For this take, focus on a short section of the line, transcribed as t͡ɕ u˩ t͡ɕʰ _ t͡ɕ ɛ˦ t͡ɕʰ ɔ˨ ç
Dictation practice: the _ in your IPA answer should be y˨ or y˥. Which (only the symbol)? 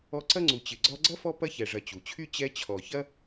y˥